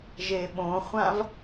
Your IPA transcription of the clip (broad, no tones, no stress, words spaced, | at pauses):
ʒeɓõχʷãv